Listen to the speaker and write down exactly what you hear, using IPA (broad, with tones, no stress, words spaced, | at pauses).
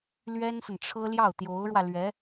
lɥɛ˥nsə˨nʈ͡ʂʰɤ˥ ljɑ˥˩ʊ̯t̪jo˧˥ʊ̯ɻwä˧ lɥɛ˧˥